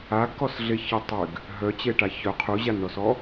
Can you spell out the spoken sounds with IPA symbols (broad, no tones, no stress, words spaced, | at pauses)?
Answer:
aɡkɔsɮe çətˤyɡ | ɦœt͡ɕeʈa çœ qʰuʑanɳɔsɔ